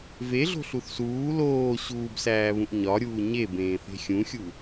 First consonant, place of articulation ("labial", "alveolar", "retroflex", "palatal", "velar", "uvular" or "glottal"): labial